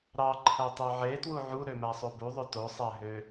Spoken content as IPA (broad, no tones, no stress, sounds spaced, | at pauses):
ɾ ɑ ǃʰ æ tˤ ø ʕ e t w u ʕ u ɾ ø m æ sˤ o b u ðˤ ø t o sˤ æ ɦ ø